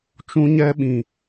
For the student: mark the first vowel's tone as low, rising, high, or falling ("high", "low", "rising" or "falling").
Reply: high